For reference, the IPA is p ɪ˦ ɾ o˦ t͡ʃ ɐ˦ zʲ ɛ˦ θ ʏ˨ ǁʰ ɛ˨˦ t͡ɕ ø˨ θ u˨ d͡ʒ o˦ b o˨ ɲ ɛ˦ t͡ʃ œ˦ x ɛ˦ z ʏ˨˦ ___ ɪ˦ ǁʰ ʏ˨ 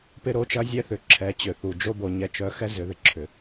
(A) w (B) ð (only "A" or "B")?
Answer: B